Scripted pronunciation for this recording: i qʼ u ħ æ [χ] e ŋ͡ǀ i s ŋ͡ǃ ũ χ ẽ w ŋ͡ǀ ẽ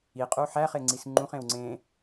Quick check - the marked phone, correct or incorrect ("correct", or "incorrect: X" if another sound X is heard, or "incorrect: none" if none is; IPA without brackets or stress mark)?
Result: correct